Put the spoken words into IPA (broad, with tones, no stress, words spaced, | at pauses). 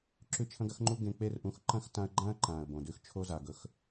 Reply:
ǁʉ˦˨t͡ʃʰɐ̃˦ɡɐ˦xŋ͡ǃu˦ ɡẽ˧k͡pe˦rʔũ˧x ǃɐ̃˦xtã˧ə̯ɡ͡ǃã˦ə̯ ǃãː˨ə̯bõ˨dʉ˧x t͡ʃʰo˦za˨ɡɵ˧x